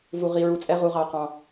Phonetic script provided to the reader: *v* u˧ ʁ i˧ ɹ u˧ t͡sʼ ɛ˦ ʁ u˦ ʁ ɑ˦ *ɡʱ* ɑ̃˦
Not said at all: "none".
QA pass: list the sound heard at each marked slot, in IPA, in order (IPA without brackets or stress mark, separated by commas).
v, q